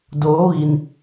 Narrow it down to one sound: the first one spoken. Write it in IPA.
d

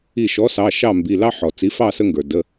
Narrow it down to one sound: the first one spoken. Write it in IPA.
i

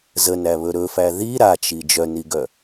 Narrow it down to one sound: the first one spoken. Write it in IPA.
z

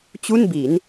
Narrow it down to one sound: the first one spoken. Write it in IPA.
t͡ɕ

